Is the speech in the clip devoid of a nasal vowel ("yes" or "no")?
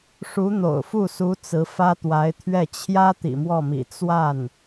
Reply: yes